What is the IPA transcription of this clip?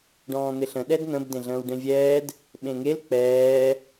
ɖ ɔ̃ː n̪ ɪ ɬ ə̃ ɗ ɛ d n̪ ə̃ b d ẽ ɮ ə̃ː w ɖ ẽ vʲ ɛː d | ɓ ẽ ŋ e l k͡p ɛː

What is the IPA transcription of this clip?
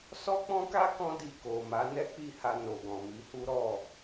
s ɔ˦ k͡p ɔ̃˦ k a˦ k ɔ̃˦ d i˧ k o˨ m a˨˦ n ɛ˦ k͡p i˦˨ h a˧ n o˨ ɡ ɔ̃˨ m i˨˦ h u˦ ɾ ɔ˦˨

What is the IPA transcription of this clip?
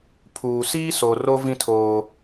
pʰ uː˨ s iː˦ s o˨ r o˦ v ĩ˦ tʰ oː˦

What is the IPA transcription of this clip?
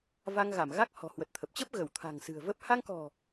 v a˧ ŋ ɣ a˧˩ m ɣ a˦˥ k̚ h ɔ̤˨˩ h w ə˨˩ t̚ t̪ʰ ə˨˩ p̚ t͡ɕ ə˦˥ p̚ ɣ ə˧˩ w t̪ʰ a̤˨˩ ŋ s ɨ̤˨˩ ə̯ v ə˦˥ p̚ h a˧ ŋ k ɔ̤˨˩

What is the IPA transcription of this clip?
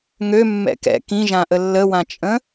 ŋ ø mː ɛ̰ k ɛ̰ k ĩ ʒ ã ʔ ə lː ə w ã t͡ʃʼ ə̃

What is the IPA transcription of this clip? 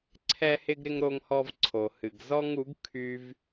ǀʰ ɛ˧ h ɪ˧ ɡ ɾ ɪ˧ ŋ ɾ o˧ ŋ h ɔ˧ v ǀʰ o˨ h ɨ˨ ɡ z ɔ˦ ŋ u˨˦ ɡ kʰ y˦ v

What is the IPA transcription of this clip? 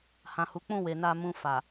h ã˨ h u˨˦ k͡p ũ˦˨ w e˨ n a˧ m ũ˧ f a˨

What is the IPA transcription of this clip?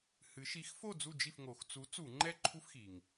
h ɨ˩˧ ʃ i˨˥ x f o˥˨ d͡z u˥˨ d͡ʒ i˥˨ f ŋ o˩˧ x t͡s u˨˥ t͡s u˧˩˧ ŋ͡ǃ ɛ˥˨ ǃʰ u˦ f x i˩ ŋ

